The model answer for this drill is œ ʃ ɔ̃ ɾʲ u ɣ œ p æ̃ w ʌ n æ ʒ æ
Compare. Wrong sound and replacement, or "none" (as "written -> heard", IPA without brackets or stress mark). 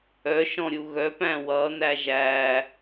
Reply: none